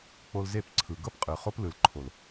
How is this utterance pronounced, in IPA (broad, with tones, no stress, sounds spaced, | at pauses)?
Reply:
k͡p o˧ l z e˦˨ p ǀʰ ɯ˨ ɡ ɤ˦ p qʼ ɯ˨ χ o˦ p l ɯ˨ l ǃʰ o˨ l